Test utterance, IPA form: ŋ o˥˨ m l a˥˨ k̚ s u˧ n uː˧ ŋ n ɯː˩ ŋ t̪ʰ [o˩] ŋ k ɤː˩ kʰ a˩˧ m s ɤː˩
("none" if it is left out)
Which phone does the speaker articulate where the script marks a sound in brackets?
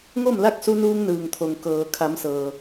o˩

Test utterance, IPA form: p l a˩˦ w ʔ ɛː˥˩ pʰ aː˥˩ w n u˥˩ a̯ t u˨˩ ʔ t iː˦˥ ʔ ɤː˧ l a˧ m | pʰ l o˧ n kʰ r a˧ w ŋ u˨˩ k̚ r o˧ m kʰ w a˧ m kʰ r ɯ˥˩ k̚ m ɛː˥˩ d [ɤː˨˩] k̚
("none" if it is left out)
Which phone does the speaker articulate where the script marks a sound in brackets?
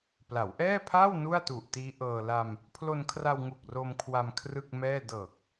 ɤː˨˩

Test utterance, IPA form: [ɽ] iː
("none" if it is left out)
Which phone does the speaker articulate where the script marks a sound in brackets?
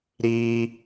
ɾ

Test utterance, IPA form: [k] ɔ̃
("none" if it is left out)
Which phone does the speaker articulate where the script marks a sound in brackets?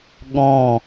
ɠ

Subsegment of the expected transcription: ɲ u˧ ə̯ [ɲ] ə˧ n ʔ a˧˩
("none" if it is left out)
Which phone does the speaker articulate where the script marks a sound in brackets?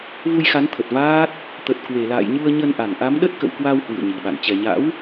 ɲ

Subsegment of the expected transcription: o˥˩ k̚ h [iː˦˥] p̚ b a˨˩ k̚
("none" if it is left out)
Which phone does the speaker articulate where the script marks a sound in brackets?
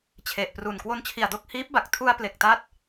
iː˦˥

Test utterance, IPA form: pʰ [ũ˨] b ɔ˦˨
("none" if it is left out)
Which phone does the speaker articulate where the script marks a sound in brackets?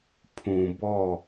ũ˨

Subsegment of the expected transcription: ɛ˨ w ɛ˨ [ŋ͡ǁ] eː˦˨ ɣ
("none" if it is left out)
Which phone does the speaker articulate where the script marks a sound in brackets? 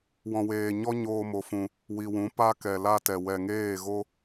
ŋ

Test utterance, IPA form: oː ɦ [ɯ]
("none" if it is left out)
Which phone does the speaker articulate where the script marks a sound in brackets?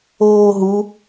u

